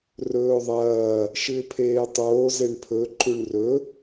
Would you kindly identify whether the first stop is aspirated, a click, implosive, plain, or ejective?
aspirated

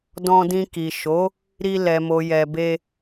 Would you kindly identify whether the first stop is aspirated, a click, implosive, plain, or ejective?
plain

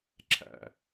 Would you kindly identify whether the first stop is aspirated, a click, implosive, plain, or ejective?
click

